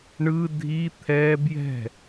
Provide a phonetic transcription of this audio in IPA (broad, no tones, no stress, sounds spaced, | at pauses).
ɳ ɯ dʱ i t̪ʰ ɛ b j ɛ̤